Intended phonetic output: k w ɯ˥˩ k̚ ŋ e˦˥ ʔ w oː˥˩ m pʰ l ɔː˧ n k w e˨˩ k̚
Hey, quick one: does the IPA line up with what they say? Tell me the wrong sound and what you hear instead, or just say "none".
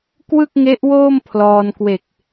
none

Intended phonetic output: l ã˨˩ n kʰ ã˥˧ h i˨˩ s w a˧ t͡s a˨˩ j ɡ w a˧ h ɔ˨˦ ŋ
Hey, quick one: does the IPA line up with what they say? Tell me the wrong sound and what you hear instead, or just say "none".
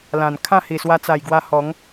none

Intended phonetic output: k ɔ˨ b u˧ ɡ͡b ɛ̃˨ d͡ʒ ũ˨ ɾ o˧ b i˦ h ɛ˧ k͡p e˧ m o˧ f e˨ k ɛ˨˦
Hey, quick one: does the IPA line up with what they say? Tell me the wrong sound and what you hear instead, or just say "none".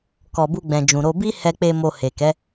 f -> h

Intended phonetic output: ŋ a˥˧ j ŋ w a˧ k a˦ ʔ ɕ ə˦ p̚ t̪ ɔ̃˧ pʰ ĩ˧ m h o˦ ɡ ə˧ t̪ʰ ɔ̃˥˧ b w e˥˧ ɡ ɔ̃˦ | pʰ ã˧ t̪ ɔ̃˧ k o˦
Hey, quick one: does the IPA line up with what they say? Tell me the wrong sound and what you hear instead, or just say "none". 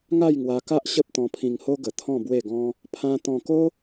m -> ŋ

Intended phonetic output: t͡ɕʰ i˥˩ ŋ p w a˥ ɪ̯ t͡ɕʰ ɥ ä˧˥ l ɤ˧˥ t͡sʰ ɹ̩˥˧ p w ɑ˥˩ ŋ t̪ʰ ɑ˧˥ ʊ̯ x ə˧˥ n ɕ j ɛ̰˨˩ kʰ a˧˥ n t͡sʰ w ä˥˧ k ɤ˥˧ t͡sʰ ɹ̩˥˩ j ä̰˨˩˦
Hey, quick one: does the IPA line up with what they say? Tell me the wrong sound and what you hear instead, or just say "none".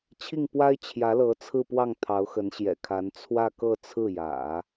ɥ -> j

